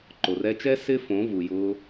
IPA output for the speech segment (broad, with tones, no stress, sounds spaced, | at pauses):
ǃ o˨ r ɛ˧ t͡ʃ ɛ˦ s ɪ˦ f õ˨˦ v u˨ j ʊː˧